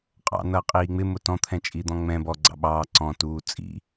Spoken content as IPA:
qʼ ɑ̰ n ʌː qʼ iː ŋ͡m ɪ m ʊ t ɔ̃ t̪ʰ ɛ̃ t͡ʃʼ i d̪ ɔ̃ ŋ͡m ɛ̃ b ɔ ɡ͡ǀ ɑ̰ ɓ ɑː ǀ ɔ̃ t uː t͡sʼ ḭ

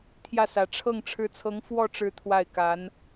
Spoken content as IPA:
t̪ʰ j ä˥˩ s ä˧˥ ʈ͡ʂʰ ɤ˥˩ ŋ ʈ͡ʂʰ ɻ̩˧˥ t͡sʰ ɤ˧˥ ŋ f w ɔ˥˧ ʈ͡ʂ ɻ̩˥˧ t̪ʰ w a˥˩ ɪ̯ k a˧˥ n

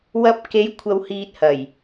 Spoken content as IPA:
w ɐ˧ p̚ k e˨˧ j kʷʰ ɐ˨ w h iː˨ t̚ h ɐ˨˩ j

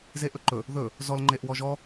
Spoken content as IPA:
z e ʔ ɵ ǃ ɵ | ð ɵ | z ɔ l ŋ͡ǃ e ʔ w ɔ ʒ ɔ

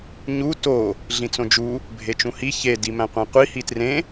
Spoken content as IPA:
ɲ u t o | ɮ ĩ t͡s õ d͡ʒ u | bʱ e t͡ʃ ũ h i ç e d i m æ̃ qʷ æ̃ qʷ i h i t r ẽ

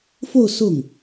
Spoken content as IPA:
f o˥˧ ʊ̯ s ʊ˥˩ ŋ

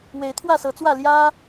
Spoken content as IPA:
w e˨˦ ɪ̯ t̪ʰ w ä˥˨ s ɤ˨˦ t͡s w ä˥˨ l j ä˦

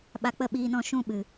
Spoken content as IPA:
ɓ a˧ k͡p ə˦˨ ɓ iː˧ n ɔ̃˦˨ ʃ ũ˦ ɓ ɨ˧

